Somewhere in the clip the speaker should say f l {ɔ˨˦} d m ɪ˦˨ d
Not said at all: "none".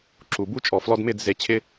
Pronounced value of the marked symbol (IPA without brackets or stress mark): ɔ˧